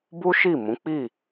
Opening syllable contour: high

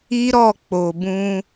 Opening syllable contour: high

